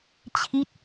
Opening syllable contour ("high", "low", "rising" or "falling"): falling